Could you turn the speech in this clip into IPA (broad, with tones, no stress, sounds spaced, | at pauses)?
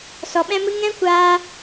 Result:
s ɔ˨ ɓ ɛ̃˦ m ɨ˦ ŋ ɛ̃˦ kʷ aː˧